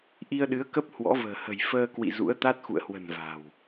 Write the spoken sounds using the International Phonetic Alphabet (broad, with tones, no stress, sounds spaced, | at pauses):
ʔ i˧ ə̯ ɗ ɨ˨˦ ə̯ k ə˦˥ p̚ h w ɔ̰˧˥ v ə̤ː˨˩ h ə̤˨˩ j f əː˧ k w ḭ˧˨ z ṵ˧˥ ə̯ t̪ a˦˥ t̚ x ṵ˧˨ ə̯ h w ə̤˨˩ n v a̤˨˩ w